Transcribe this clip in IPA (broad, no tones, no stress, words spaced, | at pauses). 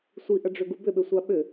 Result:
sʷiʔəɖ͡ʐʏɡu bʏɓʏsʷa ɓʏ